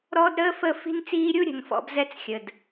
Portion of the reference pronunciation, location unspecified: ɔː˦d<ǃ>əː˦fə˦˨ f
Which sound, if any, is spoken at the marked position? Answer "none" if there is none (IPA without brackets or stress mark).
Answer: ɾ